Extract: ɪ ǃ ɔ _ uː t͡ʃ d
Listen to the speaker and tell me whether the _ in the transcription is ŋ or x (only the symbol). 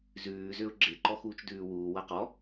x